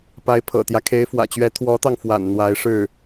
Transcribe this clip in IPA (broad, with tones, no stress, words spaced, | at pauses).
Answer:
pa˧˥ɪ̯pʰɤ̰˨˩t̪jä˦ kʰe˧˥ɪ̯fwä̰˨˩t͡ɕɥɛ˧˥ t̪ʰwɔ˧˥t̪ɑ˧ŋfwa̰˨˩n n̪wa˧˥ɪ̯ʂɻ̩˥˩